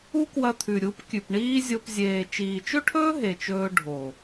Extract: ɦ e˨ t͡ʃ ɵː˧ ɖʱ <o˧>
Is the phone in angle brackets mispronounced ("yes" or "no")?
yes